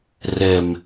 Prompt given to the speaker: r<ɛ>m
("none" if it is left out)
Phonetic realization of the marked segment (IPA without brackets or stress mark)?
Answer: ɛ